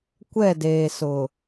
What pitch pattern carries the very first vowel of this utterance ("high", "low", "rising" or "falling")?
falling